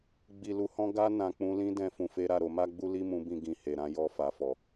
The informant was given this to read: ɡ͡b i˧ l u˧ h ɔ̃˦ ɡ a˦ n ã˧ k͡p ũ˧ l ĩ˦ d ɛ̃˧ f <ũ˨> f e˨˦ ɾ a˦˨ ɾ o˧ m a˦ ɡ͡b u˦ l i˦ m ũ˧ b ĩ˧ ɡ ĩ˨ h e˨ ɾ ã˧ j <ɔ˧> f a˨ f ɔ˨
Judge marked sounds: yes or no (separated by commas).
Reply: yes, yes